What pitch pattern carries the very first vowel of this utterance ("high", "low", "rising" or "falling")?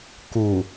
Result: low